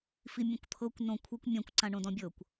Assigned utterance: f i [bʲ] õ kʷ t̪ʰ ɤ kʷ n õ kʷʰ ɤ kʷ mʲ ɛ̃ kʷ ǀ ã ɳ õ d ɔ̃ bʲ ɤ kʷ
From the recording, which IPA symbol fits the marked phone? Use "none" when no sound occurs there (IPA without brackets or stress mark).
mʲ